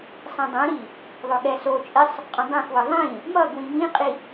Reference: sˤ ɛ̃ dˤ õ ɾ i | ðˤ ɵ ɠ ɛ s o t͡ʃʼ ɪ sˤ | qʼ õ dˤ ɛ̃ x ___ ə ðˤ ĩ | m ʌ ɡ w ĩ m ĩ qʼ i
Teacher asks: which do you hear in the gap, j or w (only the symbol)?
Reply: w